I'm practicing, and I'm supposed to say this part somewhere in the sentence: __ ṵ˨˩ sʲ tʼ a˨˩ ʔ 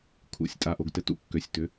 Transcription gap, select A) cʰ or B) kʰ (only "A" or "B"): B